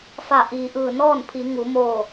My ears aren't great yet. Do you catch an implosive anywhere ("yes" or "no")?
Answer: no